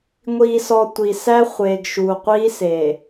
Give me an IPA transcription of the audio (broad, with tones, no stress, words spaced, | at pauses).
ŋʷiː˨sɔ˨ tʷi˨sæ˦ χʷeː˨ɡʃuː˨ qʷiː˦seː˨